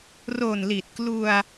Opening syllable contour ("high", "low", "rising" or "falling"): low